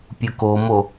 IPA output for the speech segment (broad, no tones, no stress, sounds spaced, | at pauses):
pʲ u k o m o